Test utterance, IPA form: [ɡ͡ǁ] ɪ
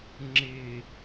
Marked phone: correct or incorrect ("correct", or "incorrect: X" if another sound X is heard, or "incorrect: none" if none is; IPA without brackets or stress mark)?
incorrect: ŋ͡ǁ